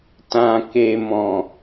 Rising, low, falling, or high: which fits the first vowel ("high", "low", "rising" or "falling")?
low